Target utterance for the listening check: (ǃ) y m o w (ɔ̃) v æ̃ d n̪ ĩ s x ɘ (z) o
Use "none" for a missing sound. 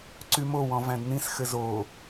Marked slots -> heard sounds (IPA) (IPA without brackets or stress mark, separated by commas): ǀ, ɔ̃, z